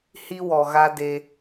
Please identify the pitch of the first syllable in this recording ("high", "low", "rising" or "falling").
high